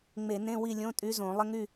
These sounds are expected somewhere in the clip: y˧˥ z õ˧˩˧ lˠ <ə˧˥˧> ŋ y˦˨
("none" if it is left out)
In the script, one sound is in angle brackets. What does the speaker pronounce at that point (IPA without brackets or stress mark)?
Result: ə˧˥˧